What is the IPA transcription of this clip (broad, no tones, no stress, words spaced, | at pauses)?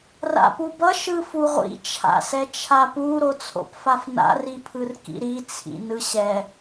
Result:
ra̰pubʌ ʃɯfuʁʷḭ t͡ʃʰa̰sɛt͡ʃʰapu ɾot͡sʰo̰pfafna̰ ripʰɯrkḭɾi t͡sʰḭnɯɕɛ